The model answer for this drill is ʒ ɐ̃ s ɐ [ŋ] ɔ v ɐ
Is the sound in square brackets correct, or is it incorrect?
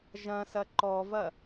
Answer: incorrect